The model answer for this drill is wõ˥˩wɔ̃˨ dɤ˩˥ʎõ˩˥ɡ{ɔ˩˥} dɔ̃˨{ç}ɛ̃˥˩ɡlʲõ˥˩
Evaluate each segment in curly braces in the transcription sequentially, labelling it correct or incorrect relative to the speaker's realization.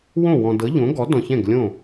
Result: correct, correct

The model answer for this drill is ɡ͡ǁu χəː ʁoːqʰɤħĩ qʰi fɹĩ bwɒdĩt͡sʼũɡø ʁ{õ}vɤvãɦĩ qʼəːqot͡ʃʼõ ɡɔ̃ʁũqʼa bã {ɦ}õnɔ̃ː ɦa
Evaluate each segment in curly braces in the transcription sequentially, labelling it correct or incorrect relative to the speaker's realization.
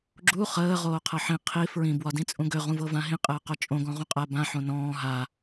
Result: incorrect, incorrect

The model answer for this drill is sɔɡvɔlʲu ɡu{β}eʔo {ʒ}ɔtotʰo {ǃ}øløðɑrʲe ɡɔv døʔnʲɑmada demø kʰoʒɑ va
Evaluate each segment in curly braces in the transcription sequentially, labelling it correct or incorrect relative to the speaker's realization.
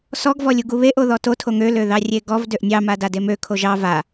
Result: correct, incorrect, incorrect

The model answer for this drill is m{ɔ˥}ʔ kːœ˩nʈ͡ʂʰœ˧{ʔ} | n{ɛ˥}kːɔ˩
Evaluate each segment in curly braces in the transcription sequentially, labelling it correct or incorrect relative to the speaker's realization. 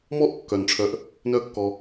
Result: correct, correct, incorrect

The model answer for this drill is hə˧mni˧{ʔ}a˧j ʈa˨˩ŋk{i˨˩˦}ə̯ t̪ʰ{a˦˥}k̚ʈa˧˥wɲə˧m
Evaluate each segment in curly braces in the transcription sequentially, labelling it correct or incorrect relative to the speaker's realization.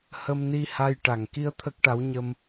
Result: incorrect, incorrect, incorrect

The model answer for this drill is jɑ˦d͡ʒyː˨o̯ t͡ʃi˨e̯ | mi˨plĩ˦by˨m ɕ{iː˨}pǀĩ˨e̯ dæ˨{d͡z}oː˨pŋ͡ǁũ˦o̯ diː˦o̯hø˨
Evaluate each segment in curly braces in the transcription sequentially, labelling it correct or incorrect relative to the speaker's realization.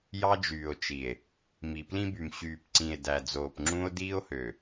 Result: incorrect, correct

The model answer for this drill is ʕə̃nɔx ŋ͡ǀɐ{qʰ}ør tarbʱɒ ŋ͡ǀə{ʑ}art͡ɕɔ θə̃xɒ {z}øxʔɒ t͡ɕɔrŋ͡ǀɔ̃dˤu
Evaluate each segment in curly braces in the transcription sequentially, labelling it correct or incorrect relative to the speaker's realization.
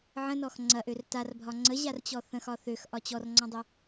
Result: incorrect, correct, incorrect

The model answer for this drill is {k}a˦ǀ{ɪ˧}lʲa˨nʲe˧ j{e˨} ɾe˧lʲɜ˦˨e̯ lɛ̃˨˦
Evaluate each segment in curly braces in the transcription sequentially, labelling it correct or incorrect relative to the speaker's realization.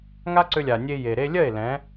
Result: incorrect, incorrect, correct

